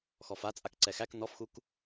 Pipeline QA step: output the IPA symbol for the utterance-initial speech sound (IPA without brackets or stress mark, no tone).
x